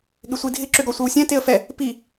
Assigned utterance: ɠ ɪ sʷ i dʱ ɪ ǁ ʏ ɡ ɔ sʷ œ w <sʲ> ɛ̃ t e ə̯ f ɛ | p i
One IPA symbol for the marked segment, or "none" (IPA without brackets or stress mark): sʲ